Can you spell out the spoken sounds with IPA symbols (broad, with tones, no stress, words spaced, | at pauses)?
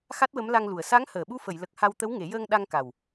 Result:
xa˦˥t̚wə˧˥mla˧ŋlu˨˩ə̯ sa˧˥ŋ həː˨˩˨ɓu˧fə˨˩˨j lə˨˩k̚ ha˧w t̪ə˧˥wŋe˨˩˦jəː˧ŋ ɗa˧ŋka˨˩w